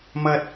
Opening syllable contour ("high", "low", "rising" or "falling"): high